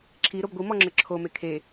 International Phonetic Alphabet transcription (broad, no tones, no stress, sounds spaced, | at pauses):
ǁʰ i ɾ o b ɡʷ i m ɔ ŋ͡ǁ ə ǁʰ o m e kʰ e